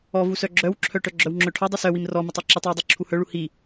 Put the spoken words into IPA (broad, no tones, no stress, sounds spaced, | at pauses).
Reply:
ɔ v u s œ ɡ͡ǁ œ w ǁʰ œ ʈ œ ɡ͡ǁ œ w ŋ͡ǁ œ ʈʰ ɔ dˤ u s œ w i m r ɔ m i tˤ œ ǁ i tˤ w u dˤ œ ǁʰ u h œ ɭ u h i